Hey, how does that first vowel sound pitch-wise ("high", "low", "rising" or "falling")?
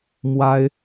high